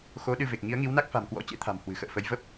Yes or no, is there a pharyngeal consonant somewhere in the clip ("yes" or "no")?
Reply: no